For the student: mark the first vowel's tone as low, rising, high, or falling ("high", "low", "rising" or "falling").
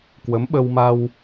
rising